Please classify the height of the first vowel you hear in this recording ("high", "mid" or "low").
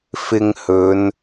high